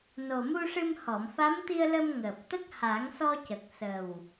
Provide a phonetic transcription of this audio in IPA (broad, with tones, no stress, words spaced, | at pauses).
no˨˩mu˧ʂɨ˧m hɔ˨˩˨mfa˧˥mt̪i˧ə̯ lə˧mŋəː˨˩p̚t̪ə˦˥k̚ ha˨˩˦ŋsɔ˧cə˨˩k̚ sə˨˩w